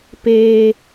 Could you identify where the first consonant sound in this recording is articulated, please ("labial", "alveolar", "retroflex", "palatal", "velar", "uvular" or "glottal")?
labial